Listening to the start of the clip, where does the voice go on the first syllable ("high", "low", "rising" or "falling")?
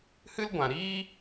high